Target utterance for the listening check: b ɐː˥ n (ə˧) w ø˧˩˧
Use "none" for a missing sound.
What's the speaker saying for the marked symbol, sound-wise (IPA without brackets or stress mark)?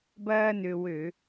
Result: ø˧